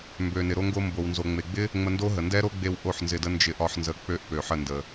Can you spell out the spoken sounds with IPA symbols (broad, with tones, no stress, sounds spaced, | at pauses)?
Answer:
m b ø˨ n ɪ˨ ɾ o˧ ŋ ɡ o˧ m b o˨ w n z o˨ ŋ͡m e˨ ɡ͡b ɪ˦ | ŋ͡m ə˧ n d o˦ ɦ ə˨ n d ɛ˦ ɾ o˦ ɡ͡b e˧ w ʔ o˦˨ ħ n z ɪ˧ d ə˦ n d͡ʒ ɪ˧ ʔ ɒ˧ ħ n z ə˧ k͡p ø˦ ʔ p ø˨ ħ ə˦˨ n d ə˨